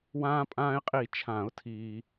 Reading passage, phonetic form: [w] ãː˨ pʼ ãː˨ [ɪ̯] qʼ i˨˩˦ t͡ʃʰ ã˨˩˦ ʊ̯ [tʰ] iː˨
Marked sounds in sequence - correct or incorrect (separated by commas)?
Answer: correct, correct, correct